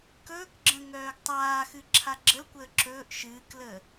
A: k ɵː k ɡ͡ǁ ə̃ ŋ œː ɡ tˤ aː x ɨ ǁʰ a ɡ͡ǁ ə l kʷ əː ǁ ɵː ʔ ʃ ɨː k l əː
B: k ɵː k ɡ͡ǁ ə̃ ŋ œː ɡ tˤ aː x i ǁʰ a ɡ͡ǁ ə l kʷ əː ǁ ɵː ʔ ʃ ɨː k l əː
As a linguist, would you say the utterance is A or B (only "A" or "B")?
A